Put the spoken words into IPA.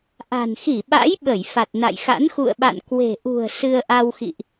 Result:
ʔ a̤˨˩ n x i˧˩ ɓ a̰˧˥ j ɓ ə˧˩ j f a˨˩ t̚ n a̰˧˨ j x a̰˧˥ n x ṵ˧˨ ə̯ ɓ a̰˧˨ n k w e̤˨˩ ʔ ṳ˨˩ ə̯ s ɨ˧ ə̯ ʔ a˧ w x ḭ˧˨ ʔ

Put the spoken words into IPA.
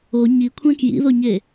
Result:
o ɲ i kʷʰ ɛ̃ k j ḭ ð o ɲ e

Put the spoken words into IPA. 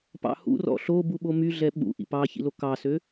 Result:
p ɑ̰ h ṵ r ɔ̰ ɬ o b u ɓ o m y ɮ ɛ ɓ ṵ ʔ ḭ p ɑ ç ḭ l o k ɑ s ø

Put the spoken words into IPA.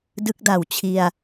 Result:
d ɯ˦˥ k̚ d a˨˩ w t͡ɕʰ i˧ a̯

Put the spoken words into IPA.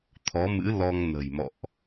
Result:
t̪ʰ ɔ˨˦ m ɨ̰˧˥ l ɔ˧ ŋ n ə̤˨˩ j m ɔ̰˧˨ ʔ

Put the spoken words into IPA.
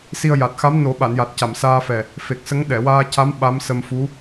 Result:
s i˧ ə̯ j a˨˩ t̚ x a˧˥ m n o˨˩˦ ɓ a˨˩˨ n j a˨˩ t̚ c a˨˩˨ m s aː˧ f ɛ˨˩ | f e˨˩ k̚ s ə˧˥ ŋ ɗ ɛ˨˩˨ w aː˧ c a˧˥ m ɓ a˧˥ m s ə˧ m f u˧˥

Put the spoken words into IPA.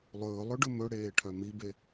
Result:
lˠ ɵː lˠ ɵ ɖ ɵ m ɵ ɽ eː ʈʰ œ m i b e

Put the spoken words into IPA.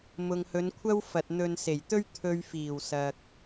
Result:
m ʊ˨ ŋ h ɵ˨˧ n kʷʰ ɐ˥ w f ɐ˨ t̚ n̪ ɵ˧ n s e˨˩ j t̪ ɵ˥ ɥ t̪ʰ ɵ˨ ɥ f iː˨˩ w s ɐ˨ k̚

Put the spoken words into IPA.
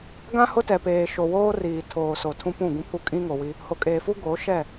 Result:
ɡ ã˦ h ʊ˦ t ɛ˨ p eː˨ ʃ o˨ w oː˦ r iː˨ tʰ oː˨ s o˨ tʰ ũ˦ p ũ˦˨ ɡ ũ˦ pʰ u˦ kʼ ĩ˦ ŋ o˨ w i˦ | h o˨ kʼ eː˨ f u˦ ɡ oː˨˦ ʃ ɛ˦˨

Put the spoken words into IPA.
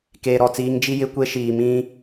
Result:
k eː˨ ɾ ɔ˨ t͡s iː˨˦ ŋ d͡ʒ i˦ j ɪ˦ kʷ e˦ ʃ iː˨ m ĩ˦

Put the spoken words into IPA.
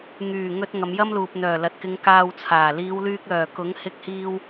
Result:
ŋ yː˨˩ ŋ ɵ˧ t̚ ŋ ɐ˨˧ m j ɐ˥ m l uː˨ p̚ n̪ œː˨˩ l ɐ˨ t̚ k ɪ˨˧ ŋ k aː˧ w t͡sʰ aː˨˩ l iː˨˧ w l yː˧ k̚ l œː˨˩ k ʊ˨˥ ŋ h ɪ˧ k̚ h iː˧ w

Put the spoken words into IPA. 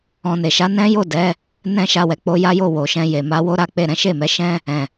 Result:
ɔ̃˨ n e˨ ʃ a˨˦ n ɛ̃˦ j o˦˨ d ɛ˨˦ | n ɛ̃˦ ʃ a˧ w ɛ˨ k͡p o˧ j a˦ j o˦˨ w o˨ ʃ ɛ̃˧ j e˨ m a˧ w o˦ ɾ a˦ k͡p e˦˨ ɾ ɛ̃˨˦ ʃ e˦˨ m ɛ˨˦ ʃ ɛ̃˦ | ɛ̃˨

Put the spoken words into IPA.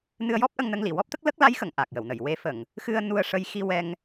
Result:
n ɨ˧ ə̯ j ɔ˦˥ p̚ ʔ ə˧ ŋ n ə˧ ŋ l i˨˩˨ w ɔ˦˥ p̚ t̪ ə˦˥ k̚ l ə˦˥ k̚ l a˧˥ j x ə˨˩˨ ŋ ʔ a˨˩ k̚ j ə˨˩˨ w n ə˨˩˨ j w e˧ f ə˨˩˨ ŋ | x ɨ˧ ə̯ n u˧ ə̯ ʂ ə˧ j x i˧ w ɛ˧ ŋ

